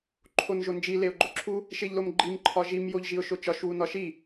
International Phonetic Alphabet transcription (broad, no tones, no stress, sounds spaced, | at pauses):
ǃʰ o n ʒ o n d͡ʒ i l e ʊ̯ ɡ͡ǃ o ǁʰ u | ʃ e ʎ l o m ɡ͡ǃ i m ǃʰ ɒ ʒ i m j o ʎ ʒ i ʊ̯ ʃ o t͡ʃ ɒ ʃ w u n ɒ ʃ i